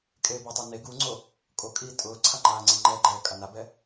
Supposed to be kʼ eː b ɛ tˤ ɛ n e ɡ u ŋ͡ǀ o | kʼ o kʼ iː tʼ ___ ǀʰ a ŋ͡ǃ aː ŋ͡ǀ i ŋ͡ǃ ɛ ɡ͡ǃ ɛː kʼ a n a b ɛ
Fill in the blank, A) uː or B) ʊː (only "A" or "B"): B